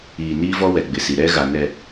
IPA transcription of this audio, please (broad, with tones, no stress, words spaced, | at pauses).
iː˨niː˦vɔ˦ wɛ˨ɡ͡bɪ˨si˨ ɾɛ˦ ɣa˨nɛ˨